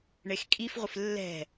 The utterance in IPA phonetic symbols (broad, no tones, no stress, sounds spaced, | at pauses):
ɳ e x kʼ i f ʁʷ ɪ f lː ɛ̤